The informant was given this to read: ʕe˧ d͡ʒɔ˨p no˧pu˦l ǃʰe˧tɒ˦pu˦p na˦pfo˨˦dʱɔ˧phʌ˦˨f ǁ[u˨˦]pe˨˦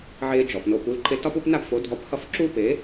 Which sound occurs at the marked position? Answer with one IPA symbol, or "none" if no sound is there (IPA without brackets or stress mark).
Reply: u˦